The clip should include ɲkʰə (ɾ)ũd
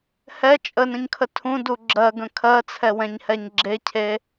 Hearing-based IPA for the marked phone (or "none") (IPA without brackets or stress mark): tʰ